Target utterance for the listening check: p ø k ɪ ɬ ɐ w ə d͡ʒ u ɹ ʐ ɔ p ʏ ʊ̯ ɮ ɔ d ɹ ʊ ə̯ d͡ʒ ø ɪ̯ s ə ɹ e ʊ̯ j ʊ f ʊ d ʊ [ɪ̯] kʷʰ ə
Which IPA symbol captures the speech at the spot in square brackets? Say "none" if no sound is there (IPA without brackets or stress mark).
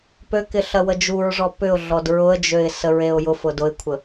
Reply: ɪ̯